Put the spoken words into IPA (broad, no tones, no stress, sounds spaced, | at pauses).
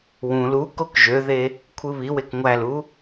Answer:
w ũ l u k o k ʒ ø ð e | kʷʰ ɯ β i w e k ŋʷ æ l u